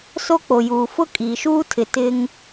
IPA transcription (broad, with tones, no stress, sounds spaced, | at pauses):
s o˦ k͡p o˨ j uː˨ f ʊ˦ kʼ iː˨ ʃ uː˦ tʰ ɪ˨ t ɪ˦ ŋ